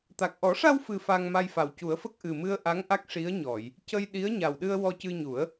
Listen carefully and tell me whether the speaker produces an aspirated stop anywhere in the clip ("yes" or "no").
no